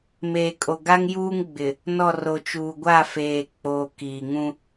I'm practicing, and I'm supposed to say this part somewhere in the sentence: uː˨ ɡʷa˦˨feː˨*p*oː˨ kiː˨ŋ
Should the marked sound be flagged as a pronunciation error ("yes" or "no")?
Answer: yes